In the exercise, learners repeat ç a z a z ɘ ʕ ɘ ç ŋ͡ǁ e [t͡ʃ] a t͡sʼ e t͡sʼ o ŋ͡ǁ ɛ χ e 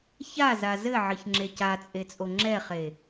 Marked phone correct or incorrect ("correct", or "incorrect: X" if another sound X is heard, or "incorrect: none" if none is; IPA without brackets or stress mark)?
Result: incorrect: c